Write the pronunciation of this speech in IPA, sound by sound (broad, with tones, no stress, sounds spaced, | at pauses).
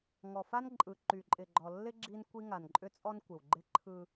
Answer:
ŋ ɔ˨ f a˦ n ǃʼ ɯ˨ ǃ y˨ ǃʼ ɪ˨ ɡ͡ǃ ɔ˨ lː ɪ˦ ɡ͡ǁ i˦ n kʷ i˦ ŋ a˨ n ǃʼ ʏ˦ t͡sʼ ɔ˦ n kʷ ɪ˨ w ɡ͡ǃ ɪ˦ ǃʰ ɯ˦